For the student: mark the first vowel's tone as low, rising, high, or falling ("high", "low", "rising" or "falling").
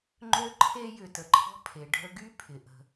high